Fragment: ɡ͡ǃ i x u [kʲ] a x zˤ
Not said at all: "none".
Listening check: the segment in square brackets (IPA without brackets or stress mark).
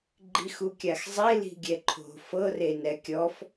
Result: kʲ